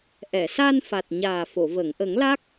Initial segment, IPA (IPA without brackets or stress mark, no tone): ʔ